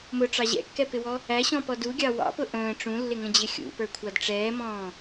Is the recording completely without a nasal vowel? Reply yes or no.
no